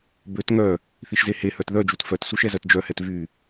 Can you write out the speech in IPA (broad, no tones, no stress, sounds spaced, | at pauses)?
b ø t ŋ œ | θ i ʃ z e h e h œ t ð œ d͡ʒ u t f œ t s u ʃ ɛ z œ t d͡ʒ œ h ɛ t v y